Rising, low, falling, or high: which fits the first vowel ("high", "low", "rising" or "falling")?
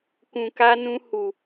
low